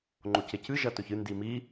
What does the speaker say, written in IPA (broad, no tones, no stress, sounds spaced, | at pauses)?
ŋ͡ǃ o c e c ɨ ʒ ɐ t ɵ ç ɨ n d i m i